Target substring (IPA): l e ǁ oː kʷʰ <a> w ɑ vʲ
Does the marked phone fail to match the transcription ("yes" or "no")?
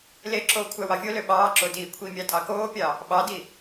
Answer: yes